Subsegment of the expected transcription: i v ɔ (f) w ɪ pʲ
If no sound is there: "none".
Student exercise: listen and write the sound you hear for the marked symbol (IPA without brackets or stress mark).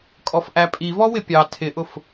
none